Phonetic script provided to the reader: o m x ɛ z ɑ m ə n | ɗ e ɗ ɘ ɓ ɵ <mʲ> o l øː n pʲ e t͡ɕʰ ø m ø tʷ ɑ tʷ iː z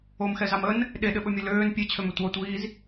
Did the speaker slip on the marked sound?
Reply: no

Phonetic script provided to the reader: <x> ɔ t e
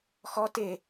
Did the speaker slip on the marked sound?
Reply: no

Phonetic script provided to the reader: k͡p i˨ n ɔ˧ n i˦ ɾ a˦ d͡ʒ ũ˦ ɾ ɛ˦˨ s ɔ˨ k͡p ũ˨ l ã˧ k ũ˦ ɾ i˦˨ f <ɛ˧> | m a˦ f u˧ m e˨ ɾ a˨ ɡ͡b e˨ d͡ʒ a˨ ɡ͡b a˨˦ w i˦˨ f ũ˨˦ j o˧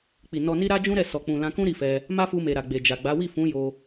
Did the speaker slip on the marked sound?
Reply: no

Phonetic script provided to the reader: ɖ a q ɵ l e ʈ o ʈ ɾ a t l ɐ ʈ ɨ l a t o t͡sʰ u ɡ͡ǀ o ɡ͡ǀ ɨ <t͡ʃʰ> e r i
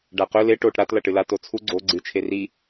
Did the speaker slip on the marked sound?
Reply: no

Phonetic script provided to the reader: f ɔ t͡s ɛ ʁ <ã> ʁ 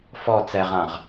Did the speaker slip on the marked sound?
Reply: no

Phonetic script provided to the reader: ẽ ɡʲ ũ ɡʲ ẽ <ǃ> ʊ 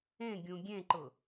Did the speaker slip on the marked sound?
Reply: no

